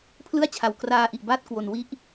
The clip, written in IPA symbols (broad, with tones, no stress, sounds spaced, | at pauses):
pʰ l ɯ˥˩ a̯ t͡ɕʰ a˨˩ w k r aː˧ ʔ i˨˩ ʔ b aː˦˥ t̚ k w o˨˩ n w i˦˥ ʔ